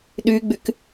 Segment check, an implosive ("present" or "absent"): present